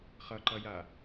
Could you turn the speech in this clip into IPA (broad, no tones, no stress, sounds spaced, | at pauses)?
χ ʌ ǃ ʌ j a